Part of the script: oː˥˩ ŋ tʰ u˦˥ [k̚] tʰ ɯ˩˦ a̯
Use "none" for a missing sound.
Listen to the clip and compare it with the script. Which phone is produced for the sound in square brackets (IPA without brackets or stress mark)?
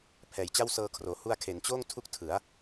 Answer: k̚